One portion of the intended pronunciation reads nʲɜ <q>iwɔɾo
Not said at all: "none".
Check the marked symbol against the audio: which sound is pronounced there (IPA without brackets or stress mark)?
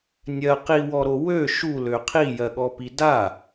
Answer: q